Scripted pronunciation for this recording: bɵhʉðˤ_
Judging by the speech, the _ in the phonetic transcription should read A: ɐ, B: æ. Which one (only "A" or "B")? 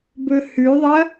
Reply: A